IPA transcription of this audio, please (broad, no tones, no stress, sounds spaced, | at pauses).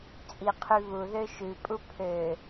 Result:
t͡sʼ i qʰ y β u ð ø ʃ ʉ pʼ u pʰ ø